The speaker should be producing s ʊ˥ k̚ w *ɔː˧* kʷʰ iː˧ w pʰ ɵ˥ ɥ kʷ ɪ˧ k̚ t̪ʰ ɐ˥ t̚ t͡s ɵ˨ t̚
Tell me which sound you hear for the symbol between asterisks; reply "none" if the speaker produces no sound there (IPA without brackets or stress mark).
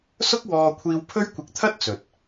ɔː˧